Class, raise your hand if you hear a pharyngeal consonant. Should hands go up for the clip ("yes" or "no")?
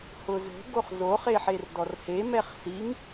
yes